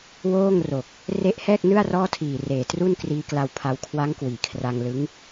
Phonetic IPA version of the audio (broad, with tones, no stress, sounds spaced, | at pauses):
w oː˥˩ ŋ r o˨˩ k̚ | r e˦˥ ʔ h ɛː˥˩ k̚ n ɯ˥˩ a̯ r ɔː˥˩ tʰ iː˨˩ r eː˨˩ t r u˥˩ n k r iː˦˥ k l a˧ w pʰ a˧ w kʰ w a˦˥ ŋ k w iː˩˦ kʰ r a˧ ŋ l ɯ˦˥ ŋ